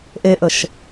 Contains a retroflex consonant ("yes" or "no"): no